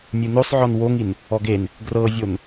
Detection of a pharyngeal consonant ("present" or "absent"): present